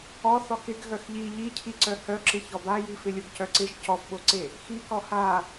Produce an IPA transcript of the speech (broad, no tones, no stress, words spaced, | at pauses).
ɔ θɔxɪɡ ɣœxʎi ʎicʰiǀœ hœǁɪ çɔbaji fɪlʲoɡcœǀɪʒ cɔfɓoǀe | xikɔ ha